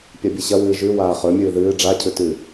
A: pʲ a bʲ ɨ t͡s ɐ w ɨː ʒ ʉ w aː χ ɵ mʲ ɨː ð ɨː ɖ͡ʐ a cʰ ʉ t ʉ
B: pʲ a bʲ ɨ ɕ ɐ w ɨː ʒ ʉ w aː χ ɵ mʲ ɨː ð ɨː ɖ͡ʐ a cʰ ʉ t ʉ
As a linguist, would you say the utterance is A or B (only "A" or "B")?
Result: B